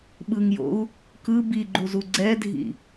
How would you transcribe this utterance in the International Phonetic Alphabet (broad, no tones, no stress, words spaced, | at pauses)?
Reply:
ɓɯŋjo̰u̯ | kɯ biɡ͡ǃuzu ɡ͡ǀɛdʱḭ